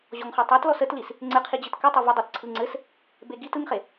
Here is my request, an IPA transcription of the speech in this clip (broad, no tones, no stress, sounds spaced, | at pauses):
ʑ ɔ ŋ χ ɔ tˤ a t l ɔ s ə t l i s | ŋ͡ǀ ɘ qʰ i d͡ʑ ɯ t k ɘ tˤ e v ə dˤ ɤ t ǀʰ ɯ ŋ͡ǀ ɘ s | b e ɡ i t ɯ ŋ χ e